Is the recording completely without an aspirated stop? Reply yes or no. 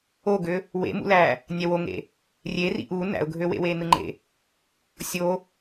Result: yes